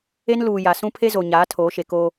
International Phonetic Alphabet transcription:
e˦ n l uː˨ j a˨ s ũ˦ pʰ e˦ z o˨ ɲ aː˨˦ tʰ oː˨˦ ʃ e˨ k oː˦

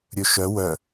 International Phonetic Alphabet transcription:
ɾʲ ɵ ʃ œ w œ

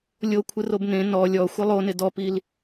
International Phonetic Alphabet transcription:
lʲ o kʷʰ ɪ r o b n ẽ n ɔ lʲ ɔ xʷ ɪ lˠ o n ɪ d ɔ p i l

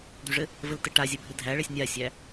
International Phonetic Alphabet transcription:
d̪ y ʐ ɘ | v ɘ l t ɘ ʈ a zʲ ɘ bʱ ɘ dʱ æ ɭ ɛ sʲ nʲ a sʲ æ

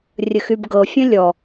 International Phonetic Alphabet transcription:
rʲ ə x y b ɡ ɤ fʲ ə̃ lʲ ɔ

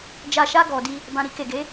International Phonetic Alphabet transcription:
d͡ʒ a˨ ʃ a˧ ɡ ɔ˨ d i˧ | b ã˨ ɾ i˧ k e˨ ɡ e˨˦

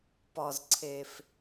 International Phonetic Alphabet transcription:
p ɒ˨ z ǀʰ e˨ f

